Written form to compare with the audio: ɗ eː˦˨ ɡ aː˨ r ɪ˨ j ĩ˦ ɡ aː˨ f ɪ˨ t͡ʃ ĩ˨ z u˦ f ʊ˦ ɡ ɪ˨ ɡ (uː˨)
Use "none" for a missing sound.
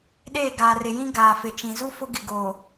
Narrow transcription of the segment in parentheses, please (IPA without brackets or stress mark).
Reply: oː˨